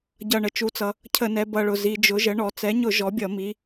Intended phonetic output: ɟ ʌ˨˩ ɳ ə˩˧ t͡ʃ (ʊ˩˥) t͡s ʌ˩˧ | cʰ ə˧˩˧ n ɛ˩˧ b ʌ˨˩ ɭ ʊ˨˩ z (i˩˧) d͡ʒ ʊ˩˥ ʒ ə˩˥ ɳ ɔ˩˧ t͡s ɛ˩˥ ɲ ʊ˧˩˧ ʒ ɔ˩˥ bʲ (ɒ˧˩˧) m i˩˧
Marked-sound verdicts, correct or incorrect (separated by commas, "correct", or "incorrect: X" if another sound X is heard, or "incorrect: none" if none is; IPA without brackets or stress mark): incorrect: u˩˥, correct, incorrect: ʌ˧˩˧